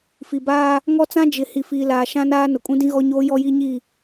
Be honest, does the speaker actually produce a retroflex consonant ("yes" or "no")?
no